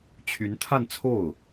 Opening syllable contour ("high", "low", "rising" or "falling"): rising